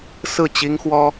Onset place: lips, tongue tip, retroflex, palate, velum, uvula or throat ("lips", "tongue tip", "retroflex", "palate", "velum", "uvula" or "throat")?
tongue tip